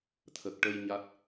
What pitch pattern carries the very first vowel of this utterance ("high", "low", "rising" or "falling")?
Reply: low